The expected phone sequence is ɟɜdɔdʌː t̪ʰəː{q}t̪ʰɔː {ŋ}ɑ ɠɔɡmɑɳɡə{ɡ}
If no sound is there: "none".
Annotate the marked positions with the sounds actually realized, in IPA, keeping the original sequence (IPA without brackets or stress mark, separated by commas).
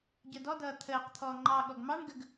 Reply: q, ŋ͡ǃ, ɡ